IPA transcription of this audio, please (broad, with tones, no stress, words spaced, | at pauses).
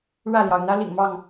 ɻä˥˨ljɑ˩ʊ̯ n̪ä˦ lḭ˨˩ŋmɑ˥˨ŋ